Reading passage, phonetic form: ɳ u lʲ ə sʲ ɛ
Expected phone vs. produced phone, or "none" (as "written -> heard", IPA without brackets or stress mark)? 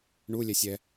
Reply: ə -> ɛ